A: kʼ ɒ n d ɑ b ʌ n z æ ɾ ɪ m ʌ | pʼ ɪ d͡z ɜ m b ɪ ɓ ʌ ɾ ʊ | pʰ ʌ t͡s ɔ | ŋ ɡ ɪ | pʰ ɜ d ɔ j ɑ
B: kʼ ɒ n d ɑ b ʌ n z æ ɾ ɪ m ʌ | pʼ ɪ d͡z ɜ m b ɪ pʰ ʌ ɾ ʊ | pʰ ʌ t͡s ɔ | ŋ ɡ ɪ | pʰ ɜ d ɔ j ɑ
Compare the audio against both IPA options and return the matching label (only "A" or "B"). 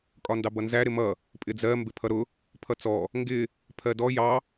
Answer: B